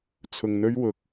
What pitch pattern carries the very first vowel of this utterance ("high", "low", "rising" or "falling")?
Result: low